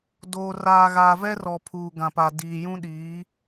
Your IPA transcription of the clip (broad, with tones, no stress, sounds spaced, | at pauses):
d oː˨ r aː˨ ɣ aː˨ v ɛ˦ r ɔ˨ pʰ uː˨ ɡ ã˨ p a˨ d iː˨ j ũ˦ ɗ iː˨˦